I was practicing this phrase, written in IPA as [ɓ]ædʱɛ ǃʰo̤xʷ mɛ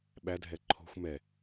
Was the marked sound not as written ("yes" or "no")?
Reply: no